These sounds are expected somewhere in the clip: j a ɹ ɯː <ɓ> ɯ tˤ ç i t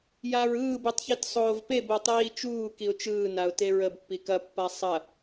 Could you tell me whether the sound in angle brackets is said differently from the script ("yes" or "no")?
yes